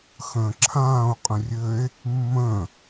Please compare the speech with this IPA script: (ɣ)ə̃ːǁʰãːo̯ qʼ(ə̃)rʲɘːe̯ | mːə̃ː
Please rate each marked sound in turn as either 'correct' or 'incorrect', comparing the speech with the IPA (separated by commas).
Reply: incorrect, correct